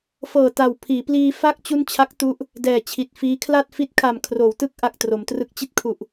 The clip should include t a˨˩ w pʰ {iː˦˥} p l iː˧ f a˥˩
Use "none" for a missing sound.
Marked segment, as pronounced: iː˩˦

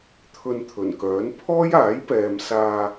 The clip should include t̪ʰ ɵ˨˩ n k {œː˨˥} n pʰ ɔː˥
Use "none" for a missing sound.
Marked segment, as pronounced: œː˨˥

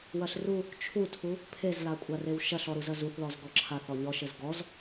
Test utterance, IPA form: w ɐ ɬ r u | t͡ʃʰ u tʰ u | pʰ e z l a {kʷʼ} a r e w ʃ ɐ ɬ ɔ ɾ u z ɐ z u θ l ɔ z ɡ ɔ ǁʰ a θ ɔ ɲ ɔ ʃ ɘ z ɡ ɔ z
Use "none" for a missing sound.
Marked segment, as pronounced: kʷʼ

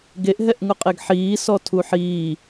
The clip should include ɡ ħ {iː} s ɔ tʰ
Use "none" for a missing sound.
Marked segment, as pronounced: iː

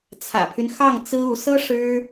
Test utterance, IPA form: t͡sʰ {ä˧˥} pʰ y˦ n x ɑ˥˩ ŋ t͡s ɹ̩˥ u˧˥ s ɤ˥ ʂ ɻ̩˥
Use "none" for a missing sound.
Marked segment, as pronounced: ä̰˨˩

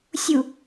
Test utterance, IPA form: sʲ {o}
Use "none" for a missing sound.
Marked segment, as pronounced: u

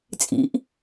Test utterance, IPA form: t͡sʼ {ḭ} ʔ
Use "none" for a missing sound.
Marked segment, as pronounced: ḭ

